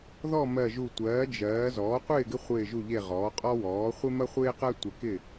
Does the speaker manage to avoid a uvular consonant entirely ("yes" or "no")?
no